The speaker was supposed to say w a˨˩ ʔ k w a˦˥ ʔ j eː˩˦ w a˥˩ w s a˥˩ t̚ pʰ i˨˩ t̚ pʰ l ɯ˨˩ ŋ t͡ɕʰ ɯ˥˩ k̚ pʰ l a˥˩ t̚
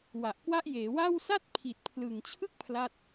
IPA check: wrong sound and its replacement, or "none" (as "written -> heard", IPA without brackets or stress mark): none